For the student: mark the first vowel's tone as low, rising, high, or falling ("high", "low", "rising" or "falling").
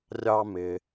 high